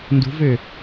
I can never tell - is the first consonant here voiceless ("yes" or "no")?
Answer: no